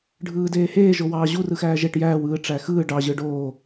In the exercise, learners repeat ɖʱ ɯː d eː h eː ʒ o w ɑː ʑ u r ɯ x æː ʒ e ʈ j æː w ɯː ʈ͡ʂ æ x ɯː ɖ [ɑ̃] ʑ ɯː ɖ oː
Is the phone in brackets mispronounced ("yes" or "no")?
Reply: yes